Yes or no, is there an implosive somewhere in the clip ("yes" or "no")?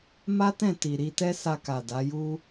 no